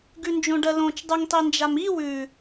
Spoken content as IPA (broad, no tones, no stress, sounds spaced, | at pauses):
ɡ ʉ n d͡ʒ õ ɖ ɜ l õ t͡ʃ dˤ ʉ ŋ tˤ i n d͡ʒ a m i w ʉ